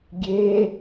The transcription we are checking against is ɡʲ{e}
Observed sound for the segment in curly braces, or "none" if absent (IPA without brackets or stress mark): e